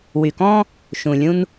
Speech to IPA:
w y˨ k ɔ̃˦ | ʃ ũ˨ lʲ ũ˦ n

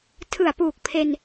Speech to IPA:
tʰ ɯ˨˩ a̯ p uː˨˩ k̚ pʰ e˧ n

